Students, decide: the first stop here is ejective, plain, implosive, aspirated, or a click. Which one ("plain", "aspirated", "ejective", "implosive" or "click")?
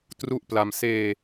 plain